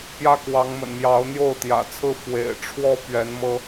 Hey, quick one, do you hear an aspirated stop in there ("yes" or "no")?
yes